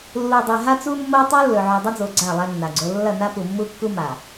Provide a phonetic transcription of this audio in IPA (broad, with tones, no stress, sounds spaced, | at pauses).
lː u˨ dˤ e˨ ɦ a˦ t͡s u˦ mː o˦ tˤ u˦ lː ɵ˨ ʕ o˨ dˤ ɐ˦ d͡z o˨ ɡ͡ǀ a˦˨ lˠ a˦ nː a˨ ɡ͡ǀ o˦ lː ɐ˦˨ n a˦ p u˨ mː u˦ kː u˦ m a˨